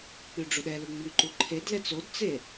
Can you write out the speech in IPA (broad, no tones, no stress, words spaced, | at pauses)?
k͡pyɖ͡ʐuɗɛlu ŋ͡myǃuǃʰedlɛt͡s odt͡se